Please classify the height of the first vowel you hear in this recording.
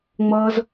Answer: mid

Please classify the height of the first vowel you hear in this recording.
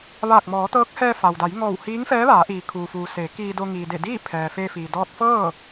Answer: low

